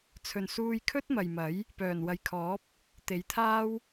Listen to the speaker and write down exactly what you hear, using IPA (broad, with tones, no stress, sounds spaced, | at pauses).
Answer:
t͡sʰ ɵ˨ n s uː˧ j kʰ ɵ˥ t̚ m ɐ˨ j m ɐ˨˥ j | p œː˨˩ n w ɐ˨ j kʰ ɔː˨˥ p̚ | t̪ e˨˥ j t̪ʰ aː˥ w